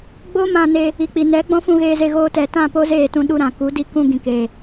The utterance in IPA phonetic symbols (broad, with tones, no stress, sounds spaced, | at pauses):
ɡ͡b o˦ m ã˧ n e˧ | i˨ k͡p i˨ n ɛ˨˦ ɡ͡b ɔ̃˦ f ũ˧ ɣ eː˧ z e˧ ɣ oː˧ t ɛ˨ t ã˦˨ p o˦ z eː˦˨ t ũ˧ ɗ u˧ ɾ ã˨ k u˨˦ d i˦ k ũ˧ ɡ ĩ˨ k eː˨